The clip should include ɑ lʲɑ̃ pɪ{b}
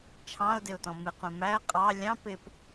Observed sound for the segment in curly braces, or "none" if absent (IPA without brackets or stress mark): p